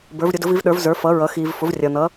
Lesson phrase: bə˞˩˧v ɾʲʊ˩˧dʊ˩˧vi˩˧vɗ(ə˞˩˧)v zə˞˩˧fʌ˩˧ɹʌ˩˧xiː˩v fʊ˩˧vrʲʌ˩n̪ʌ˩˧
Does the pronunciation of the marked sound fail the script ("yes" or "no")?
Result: no